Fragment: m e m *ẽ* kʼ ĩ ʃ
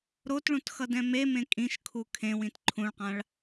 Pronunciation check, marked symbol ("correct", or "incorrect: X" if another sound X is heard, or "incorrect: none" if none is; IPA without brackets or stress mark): correct